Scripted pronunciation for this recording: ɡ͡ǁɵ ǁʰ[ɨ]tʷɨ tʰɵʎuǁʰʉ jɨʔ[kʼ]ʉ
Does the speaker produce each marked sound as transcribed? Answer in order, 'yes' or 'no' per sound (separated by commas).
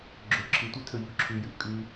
yes, yes